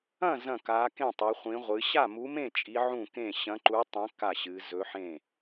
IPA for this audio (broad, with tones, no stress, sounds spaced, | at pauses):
ɐ̃˥˨ z ɐ̃˥˨ k a˧˥ k ẽ˥˨ tˤ e˧˥ χʷ ĩ˧˥ ʁʷ ɨ˧˥ ɕ a˥˨ m u˧˥ m ẽ˥˨ t͡ʃʼ i˧˥ ʕ ũ˥˨ k ẽ˥˨ ɕ ɐ̃˧˥ ǃ u˧˥ tˤ ɐ̃˧˥ k a˥˨ ɕ ɨ˧˥ z ɵ˧˥ ħ ẽ˥˨